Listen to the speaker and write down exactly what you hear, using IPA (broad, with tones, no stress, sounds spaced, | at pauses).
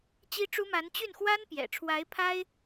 t͡ɕ i˥ ʈ͡ʂ u˥ m a˧˥ n t͡ɕ y˥˩ n x w a˥ n p j ɛ̰˨˩ ʈ͡ʂʰ w a˧˥ ɪ̯ pʰ a˥ ɪ̯